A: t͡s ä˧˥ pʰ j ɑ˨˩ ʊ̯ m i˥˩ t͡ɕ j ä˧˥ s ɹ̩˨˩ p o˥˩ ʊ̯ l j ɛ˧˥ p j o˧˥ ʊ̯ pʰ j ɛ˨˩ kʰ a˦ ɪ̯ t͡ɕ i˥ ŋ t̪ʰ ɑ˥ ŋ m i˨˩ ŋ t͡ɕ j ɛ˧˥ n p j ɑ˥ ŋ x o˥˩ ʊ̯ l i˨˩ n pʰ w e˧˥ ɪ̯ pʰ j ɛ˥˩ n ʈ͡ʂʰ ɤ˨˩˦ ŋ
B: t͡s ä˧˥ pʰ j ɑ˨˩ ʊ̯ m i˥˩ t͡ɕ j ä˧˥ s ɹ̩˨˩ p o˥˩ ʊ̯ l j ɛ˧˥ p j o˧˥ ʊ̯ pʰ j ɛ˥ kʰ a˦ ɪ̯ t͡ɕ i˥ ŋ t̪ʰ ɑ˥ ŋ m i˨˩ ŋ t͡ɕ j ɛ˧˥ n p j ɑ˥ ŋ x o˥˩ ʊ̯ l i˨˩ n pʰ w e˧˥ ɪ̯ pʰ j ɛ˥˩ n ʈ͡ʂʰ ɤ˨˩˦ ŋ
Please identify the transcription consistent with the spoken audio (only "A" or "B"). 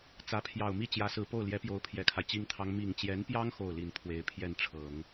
A